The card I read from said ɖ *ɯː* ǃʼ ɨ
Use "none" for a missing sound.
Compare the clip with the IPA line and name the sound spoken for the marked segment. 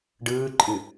ɯː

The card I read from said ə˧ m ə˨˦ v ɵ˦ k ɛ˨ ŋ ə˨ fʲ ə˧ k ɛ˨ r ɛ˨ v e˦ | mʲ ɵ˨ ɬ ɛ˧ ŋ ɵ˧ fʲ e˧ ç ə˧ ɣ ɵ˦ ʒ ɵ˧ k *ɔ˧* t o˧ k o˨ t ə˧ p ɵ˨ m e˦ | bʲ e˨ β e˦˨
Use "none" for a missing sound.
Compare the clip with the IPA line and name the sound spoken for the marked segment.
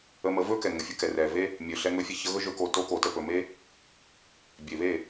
o˧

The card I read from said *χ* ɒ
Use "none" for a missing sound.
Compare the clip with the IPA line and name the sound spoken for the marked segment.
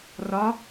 r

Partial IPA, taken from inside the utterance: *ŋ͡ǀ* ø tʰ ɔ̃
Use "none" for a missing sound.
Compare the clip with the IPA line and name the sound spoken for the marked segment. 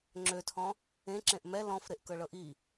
ŋ͡ǁ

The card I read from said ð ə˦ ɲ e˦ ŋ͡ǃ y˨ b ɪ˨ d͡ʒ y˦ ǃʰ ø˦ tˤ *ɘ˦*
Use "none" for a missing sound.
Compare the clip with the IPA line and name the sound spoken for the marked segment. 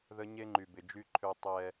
ɛ˦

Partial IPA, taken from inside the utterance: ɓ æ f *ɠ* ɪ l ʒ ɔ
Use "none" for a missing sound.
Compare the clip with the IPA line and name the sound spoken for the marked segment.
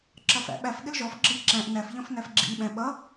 ɠ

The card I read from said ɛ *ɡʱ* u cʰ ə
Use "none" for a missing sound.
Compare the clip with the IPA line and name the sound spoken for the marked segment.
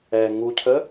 ŋ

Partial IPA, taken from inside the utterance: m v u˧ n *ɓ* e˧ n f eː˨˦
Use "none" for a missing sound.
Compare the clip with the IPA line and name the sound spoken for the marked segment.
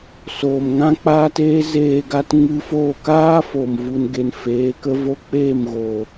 ɡ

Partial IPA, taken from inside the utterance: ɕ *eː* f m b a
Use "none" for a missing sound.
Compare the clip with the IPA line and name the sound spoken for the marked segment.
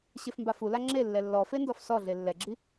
e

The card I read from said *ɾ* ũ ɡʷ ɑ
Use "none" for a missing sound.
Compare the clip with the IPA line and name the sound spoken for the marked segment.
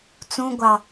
t͡s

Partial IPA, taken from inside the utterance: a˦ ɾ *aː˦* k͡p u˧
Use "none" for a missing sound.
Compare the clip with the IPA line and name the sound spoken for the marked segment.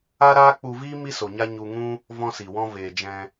aː˦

